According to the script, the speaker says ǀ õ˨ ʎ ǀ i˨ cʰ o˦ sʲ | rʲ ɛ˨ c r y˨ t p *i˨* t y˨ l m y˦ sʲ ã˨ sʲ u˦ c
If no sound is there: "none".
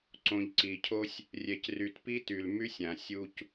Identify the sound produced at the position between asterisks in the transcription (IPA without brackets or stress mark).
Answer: i˦